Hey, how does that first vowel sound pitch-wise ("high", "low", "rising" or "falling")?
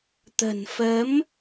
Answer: low